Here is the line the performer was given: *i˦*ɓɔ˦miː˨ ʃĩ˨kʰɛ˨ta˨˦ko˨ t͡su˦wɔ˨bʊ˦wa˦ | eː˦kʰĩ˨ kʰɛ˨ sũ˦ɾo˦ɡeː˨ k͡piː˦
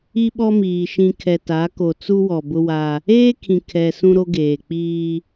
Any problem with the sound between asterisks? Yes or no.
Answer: no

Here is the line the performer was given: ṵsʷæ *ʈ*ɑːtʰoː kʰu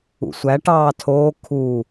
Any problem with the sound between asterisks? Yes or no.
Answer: no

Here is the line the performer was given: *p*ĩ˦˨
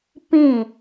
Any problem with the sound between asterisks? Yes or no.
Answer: no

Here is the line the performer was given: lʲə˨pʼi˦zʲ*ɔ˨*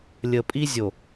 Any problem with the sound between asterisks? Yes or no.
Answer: yes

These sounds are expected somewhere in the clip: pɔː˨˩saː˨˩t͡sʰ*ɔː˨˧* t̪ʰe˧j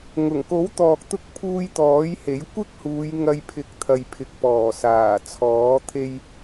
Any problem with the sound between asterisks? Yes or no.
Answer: yes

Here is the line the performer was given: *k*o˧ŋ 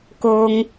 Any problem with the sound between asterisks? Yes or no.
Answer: no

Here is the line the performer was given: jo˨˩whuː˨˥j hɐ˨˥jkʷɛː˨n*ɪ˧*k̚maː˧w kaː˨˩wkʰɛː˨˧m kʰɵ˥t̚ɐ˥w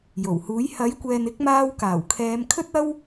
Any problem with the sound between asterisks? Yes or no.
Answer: yes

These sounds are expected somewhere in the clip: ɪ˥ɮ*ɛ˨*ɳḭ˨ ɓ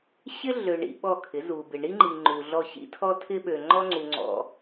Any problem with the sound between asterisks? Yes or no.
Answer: yes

